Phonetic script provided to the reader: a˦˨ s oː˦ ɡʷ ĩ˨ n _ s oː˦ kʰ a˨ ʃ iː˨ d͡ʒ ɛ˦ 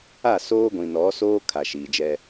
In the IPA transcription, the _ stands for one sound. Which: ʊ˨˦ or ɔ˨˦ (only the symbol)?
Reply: ɔ˨˦